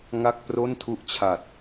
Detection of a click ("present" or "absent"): absent